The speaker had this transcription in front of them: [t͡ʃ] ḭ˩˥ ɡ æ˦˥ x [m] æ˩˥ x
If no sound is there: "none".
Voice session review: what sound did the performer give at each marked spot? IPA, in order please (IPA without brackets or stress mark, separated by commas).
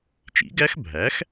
t͡ʃ, bʱ